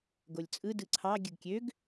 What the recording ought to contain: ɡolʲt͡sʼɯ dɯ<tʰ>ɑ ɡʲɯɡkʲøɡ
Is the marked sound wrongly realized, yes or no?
yes